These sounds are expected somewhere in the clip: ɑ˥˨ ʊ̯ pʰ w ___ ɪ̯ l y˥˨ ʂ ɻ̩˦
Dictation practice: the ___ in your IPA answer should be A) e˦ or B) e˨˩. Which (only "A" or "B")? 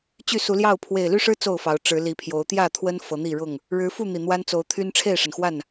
B